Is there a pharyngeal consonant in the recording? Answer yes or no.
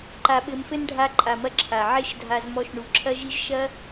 yes